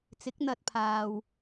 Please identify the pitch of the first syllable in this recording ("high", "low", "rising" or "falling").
rising